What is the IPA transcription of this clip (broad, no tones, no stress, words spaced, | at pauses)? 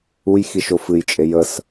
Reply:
ujxiʃo fɨjt͡ʃʼe jəs